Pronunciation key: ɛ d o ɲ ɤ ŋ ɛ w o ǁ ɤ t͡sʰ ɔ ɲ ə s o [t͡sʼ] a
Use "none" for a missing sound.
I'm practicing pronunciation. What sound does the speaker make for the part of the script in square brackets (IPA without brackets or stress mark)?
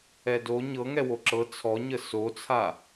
t͡sʰ